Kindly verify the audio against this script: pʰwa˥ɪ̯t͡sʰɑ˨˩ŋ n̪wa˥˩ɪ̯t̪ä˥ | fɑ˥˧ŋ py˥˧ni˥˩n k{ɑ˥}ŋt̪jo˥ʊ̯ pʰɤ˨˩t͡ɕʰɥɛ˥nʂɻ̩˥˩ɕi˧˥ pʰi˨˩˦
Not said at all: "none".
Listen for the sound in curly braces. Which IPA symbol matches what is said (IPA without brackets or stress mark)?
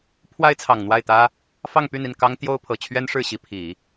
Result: ɑ˥